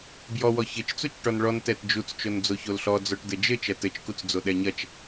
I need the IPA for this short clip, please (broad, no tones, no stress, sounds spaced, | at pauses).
b j ɔ w ɔ ç ɘ t͡ʃ t͡s u t͡ʃ ʈ ɔ n ɭ ɔ n t ɛ t d͡ʒ u t͡s t͡ʃ o n d͡z o ç o l ɬ ɔ d͡z ɔ ʈ d ɘ d͡ʒ ɘ t͡ʃ ɐ t ɘ t͡ʃ k u t͡s d͡z o ɗ ɛ ɲ ɐ t͡ʃ